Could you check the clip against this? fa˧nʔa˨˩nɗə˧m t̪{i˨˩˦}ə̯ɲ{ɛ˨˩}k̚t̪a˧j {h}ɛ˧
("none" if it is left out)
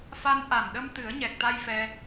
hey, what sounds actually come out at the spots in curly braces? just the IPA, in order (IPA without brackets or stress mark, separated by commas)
ɨ˨˩˦, ɛ˨˩, f